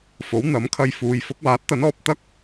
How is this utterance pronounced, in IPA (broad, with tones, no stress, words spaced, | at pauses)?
fo˨˥wn̪ɐ˨˥mkʰɐ˧jfuː˨˧j fʊ˨˥k̚waː˨˥t̚t̪ɐ˨˥nɔː˨p̚ t̪ɐ˥k̚